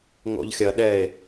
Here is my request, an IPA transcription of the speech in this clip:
ŋo̰ʎxʲɐ ɗɛe̯

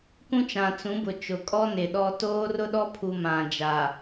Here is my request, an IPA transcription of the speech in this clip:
kũ˦t͡ʃã˨t͡sũ˨˦bʊ˨ t͡ʃʊ˨kʼɔ˦ nɪ˨ɗɔ˦ toː˦rʊ˦ɗɔ˦ pʰu˨ mã˨d͡ʒa˨

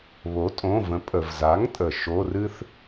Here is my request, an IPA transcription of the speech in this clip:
βo˩˥tʼõ˩˧˩və̃˩˥ pʼə˩vza˩˥ŋtʼə˩ ʃo˩˧˩rɨ˦θ

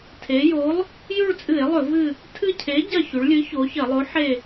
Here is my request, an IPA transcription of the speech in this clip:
tʰe˩˧jo˨˥lˠ | jʉ˦˨ɭt͡sʼɨ˧˩˧e̯lˠɵ˧˩˧ vɨ˦˨ | tʰɨ˦˨cʰe˨˥ ɟɐ˦˨çʉ˩˧ɭlʲɨ˨˥ ço˩˧çɐ˧˩˧lˠo˨˥ ħe˦˨

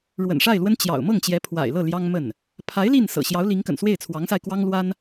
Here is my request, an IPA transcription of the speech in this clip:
ɻwə̰˨˩nʂa˥˩ɪ̯lwə˥n t͡ɕjɑ̰˨˩ʊ̯ mɤ˥˩ŋt͡ɕjɛ˧˥pʰwa̰˨˩ɪ̯lɤ˥˩ ljɑ˥ŋmə˥˩n | pʰa˧˥ɪ̯ li˥˩nsɤ̰˨˩ ɕjɑ˧˥ʊ̯li˧˥ŋkə̰˨˩n swe˥˩ɪ̯t͡sʰwɑ˧˥ŋsa˧ɪ̯ kwɑ˥ŋlwa˥n

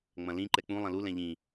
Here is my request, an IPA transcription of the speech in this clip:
ŋ͡mɐ̃lĩ ǃɛk͡pũ lˠɐ̃lu lɛ̃ʎĩ

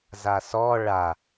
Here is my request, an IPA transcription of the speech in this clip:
zasɔ ɭa

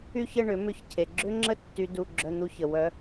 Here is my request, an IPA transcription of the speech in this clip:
y˥˧çə˥˧ɳʏ˨˩˦ mʏ˥˧çcʰe˨ ɡ͡ǁʏ˦˥ŋ͡ǁə˦˥ tːy˦˥du˧˥˧ ɡ͡ǁœ˧˥˧n̪u˦˥çə˨ wœ˦˥

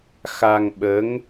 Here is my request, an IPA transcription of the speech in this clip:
xa˧ŋɓə˧˥ŋ

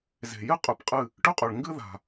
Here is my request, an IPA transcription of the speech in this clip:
ze̤˨jɨ˦ qʼʉ˨pqʼɨ˦˨ | ʈʉ˦qʼɵ˨ɭ ŋɡɨ˦ ða̤˨

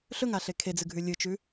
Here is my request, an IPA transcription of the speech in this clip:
ɬɵŋaɬe kʰed͡zɨɡʱʉ lʲɨt͡ʃʉ

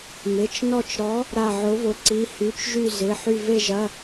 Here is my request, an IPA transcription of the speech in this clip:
mɪ˩˧˩t͡ʃnɔ˦˨t͡ʃɾɔ˨˥ | ɾa˦˨ʕʊ˨˥vʊ˨˥ ǀi˩˧˩hy˩˧˩t͡ʃʒy˦˨ zɪ˩˧˩ħy˦˨ ve˦˨ʒɐ˩˧˩

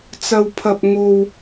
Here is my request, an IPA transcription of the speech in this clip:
t͡sɐ˥wpʰɐ˥p̚ ŋo˥w

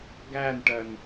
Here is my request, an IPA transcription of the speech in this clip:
ɡænʈɜn

